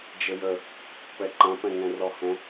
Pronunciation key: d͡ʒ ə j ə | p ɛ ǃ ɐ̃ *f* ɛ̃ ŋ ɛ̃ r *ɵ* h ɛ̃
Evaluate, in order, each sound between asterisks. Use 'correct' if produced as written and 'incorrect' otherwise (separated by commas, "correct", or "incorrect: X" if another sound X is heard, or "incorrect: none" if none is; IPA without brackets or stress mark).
incorrect: p, incorrect: ɔ